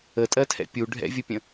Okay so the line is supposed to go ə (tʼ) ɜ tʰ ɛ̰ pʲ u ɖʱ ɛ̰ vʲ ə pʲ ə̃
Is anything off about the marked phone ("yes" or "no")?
no